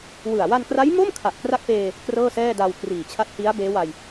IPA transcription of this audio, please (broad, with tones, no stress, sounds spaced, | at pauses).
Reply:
w ɯ˨˩ a̯ w a˧ n k r a˦˥ j m o˥˩ m kʰ a˨˩ ʔ k r a˥˩ k̚ p eː˧ | k r ɤː˥˩ s ɛː˥˩ d a˧ w k r iː˨˩ t͡ɕʰ a˦˥ t̚ h i˦˥ a̯ b eː˦˥ w a˧ j